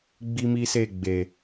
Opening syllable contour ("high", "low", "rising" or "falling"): high